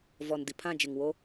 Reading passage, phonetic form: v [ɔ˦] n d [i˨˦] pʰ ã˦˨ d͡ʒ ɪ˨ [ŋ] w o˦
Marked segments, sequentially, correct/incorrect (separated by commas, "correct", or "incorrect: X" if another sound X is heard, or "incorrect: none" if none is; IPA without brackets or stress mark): incorrect: ɔ˨, incorrect: i˨, correct